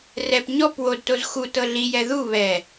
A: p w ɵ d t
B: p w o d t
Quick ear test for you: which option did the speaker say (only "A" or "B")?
B